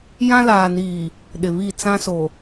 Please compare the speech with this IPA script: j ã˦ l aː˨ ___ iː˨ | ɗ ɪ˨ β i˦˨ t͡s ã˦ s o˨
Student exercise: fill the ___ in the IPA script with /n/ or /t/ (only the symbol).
n